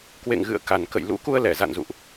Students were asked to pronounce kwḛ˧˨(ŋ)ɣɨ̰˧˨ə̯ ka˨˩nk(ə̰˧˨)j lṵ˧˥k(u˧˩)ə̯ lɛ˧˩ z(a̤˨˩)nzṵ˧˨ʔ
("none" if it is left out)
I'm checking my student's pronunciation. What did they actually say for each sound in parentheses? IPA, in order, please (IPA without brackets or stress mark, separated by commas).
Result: ŋ, ə̰˧˨, u˧, a̰˧˨